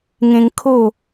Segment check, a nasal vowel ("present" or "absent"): present